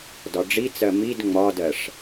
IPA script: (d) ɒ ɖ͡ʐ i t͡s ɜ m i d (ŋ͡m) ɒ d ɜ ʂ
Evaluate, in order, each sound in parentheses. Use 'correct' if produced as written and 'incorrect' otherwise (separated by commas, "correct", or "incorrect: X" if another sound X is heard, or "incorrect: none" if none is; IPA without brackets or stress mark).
correct, correct